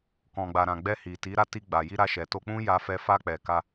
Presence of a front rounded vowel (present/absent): absent